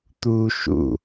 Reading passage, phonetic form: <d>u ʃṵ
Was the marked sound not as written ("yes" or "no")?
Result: yes